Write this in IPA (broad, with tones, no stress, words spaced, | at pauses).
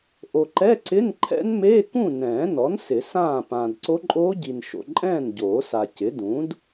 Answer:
ʔo˨ǃɛ˧˥˧ǀɪ˧˥˧n ǃʰɛ̰˦˥nmeː˧˥˧ kũ˥˨nɛ̃ː˨˩˦nɔ˩˥n sɪ˨˩˦sãː˥˨ pãː˨dǀo˦˥ǃʼoː˦˥ɟi˨n ʃo̰˨ǃʼɛ̃ː˥˨n ɟoː˨˩˦sa˨cɪ˩˥ dũ˩˥d